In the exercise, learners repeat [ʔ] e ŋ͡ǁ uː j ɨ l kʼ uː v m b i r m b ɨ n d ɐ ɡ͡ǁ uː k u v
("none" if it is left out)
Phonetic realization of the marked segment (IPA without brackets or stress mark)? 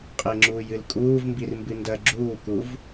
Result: qʼ